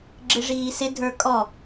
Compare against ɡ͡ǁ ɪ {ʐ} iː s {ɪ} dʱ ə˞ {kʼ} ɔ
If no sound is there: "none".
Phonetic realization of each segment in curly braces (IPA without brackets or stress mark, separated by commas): ʐ, ɪ, kʼ